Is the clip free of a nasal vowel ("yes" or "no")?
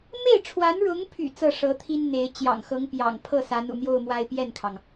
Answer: yes